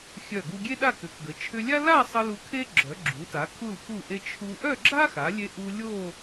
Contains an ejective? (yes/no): no